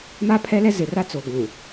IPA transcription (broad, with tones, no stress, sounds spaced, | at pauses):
m a˦ pʰ ɛ˦ l ɛ˦ z ɪ˨ r a˦ t͡s o˨ ɡʷ ũ˨